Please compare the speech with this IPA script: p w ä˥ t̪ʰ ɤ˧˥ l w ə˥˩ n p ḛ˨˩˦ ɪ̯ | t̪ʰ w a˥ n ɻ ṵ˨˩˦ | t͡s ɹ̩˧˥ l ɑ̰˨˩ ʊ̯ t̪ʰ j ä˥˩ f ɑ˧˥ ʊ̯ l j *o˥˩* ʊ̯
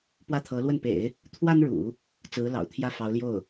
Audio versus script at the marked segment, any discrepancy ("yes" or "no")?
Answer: no